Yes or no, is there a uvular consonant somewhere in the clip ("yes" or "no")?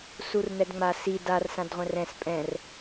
yes